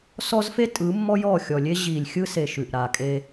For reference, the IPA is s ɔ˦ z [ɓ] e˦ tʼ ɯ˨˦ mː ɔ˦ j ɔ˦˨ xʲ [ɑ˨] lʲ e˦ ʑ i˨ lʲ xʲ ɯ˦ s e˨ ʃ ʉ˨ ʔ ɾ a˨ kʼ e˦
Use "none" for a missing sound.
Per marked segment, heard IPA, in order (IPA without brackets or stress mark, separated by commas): f, ɔ˨